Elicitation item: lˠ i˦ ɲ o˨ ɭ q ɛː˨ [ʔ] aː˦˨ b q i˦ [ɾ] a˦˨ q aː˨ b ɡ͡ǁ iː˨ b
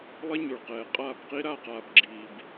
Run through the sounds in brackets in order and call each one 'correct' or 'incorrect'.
incorrect: qʼ, correct

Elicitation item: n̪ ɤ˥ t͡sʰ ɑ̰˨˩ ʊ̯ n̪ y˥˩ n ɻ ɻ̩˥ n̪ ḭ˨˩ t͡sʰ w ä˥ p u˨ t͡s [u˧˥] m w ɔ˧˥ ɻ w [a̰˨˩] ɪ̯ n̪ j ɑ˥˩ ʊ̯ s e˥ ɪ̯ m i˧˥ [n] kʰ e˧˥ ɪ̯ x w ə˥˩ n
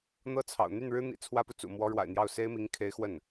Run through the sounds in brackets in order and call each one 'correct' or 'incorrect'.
incorrect: ṵ˨˩, correct, incorrect: ŋ

